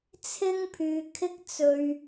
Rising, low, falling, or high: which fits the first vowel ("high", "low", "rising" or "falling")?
high